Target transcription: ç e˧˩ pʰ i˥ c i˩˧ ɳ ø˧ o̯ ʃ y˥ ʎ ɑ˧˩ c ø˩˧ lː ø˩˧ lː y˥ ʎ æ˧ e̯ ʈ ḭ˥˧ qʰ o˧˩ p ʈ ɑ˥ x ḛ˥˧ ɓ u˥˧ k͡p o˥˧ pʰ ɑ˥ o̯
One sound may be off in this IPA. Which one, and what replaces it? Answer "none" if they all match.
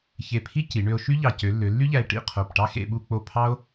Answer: none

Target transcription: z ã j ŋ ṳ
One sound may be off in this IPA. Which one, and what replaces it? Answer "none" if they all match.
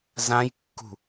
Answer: ŋ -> kː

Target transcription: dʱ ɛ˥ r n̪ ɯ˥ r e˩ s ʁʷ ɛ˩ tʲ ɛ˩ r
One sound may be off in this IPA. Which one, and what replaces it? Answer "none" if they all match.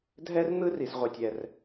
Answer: e˩ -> i˩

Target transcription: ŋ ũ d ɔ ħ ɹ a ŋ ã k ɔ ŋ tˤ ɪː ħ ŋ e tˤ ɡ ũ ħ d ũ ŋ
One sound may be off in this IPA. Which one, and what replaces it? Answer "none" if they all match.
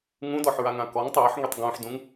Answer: none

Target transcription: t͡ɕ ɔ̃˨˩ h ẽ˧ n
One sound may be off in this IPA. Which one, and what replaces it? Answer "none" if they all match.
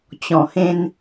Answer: none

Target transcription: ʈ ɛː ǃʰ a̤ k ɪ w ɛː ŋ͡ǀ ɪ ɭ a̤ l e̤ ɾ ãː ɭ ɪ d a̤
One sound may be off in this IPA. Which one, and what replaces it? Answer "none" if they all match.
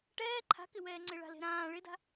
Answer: none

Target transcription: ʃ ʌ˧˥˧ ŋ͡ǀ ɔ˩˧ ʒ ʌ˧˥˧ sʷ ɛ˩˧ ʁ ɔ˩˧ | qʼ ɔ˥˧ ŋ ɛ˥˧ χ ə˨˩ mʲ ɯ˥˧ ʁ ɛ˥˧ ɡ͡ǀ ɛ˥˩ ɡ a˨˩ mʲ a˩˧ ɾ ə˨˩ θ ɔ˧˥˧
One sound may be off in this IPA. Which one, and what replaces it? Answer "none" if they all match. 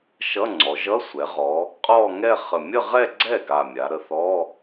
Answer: ɯ˥˧ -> ə˥˧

